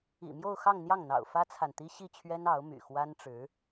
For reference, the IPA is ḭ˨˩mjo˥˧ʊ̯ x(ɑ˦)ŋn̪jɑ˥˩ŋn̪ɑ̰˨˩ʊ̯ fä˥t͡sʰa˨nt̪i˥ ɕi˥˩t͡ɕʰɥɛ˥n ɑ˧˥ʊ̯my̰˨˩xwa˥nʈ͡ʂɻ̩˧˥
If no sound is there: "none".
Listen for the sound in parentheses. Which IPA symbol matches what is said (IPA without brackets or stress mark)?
ɑ˥˧